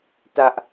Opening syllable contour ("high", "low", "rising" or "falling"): high